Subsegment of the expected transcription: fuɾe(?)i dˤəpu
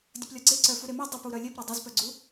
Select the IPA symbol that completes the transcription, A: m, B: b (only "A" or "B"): A